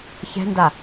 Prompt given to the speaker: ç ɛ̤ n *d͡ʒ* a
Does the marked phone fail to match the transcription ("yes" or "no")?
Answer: yes